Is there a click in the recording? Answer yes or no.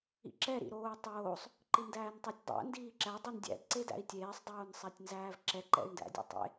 yes